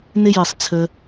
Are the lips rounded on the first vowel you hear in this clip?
no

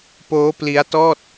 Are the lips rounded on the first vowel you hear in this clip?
yes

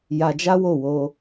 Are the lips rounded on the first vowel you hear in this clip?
no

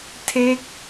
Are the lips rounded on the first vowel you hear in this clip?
no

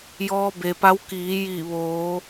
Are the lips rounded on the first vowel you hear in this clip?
yes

